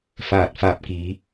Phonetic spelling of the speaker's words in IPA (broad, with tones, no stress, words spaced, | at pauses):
faː˧˩t̚faː˧˩p̚kiː˩˧